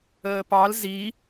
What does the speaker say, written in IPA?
əː p ɑ l z i

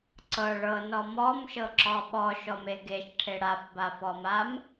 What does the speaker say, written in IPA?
ǀ ɤ ɭ ɤ n ɔ m ɔ m ʃ ɤ ǁ ɔ ɓ ɔ ʃ ɔ m e ɡ e ʃ ʈʰ e ɽ a f b a f ɔ m a m

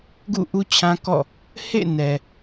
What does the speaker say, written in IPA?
ɡ ṵ˦˨ ʔ u˦ t͡ɕʰ ã˦ k ɔ̰˦˨ | h ḛ˦˨ n ɛ˨

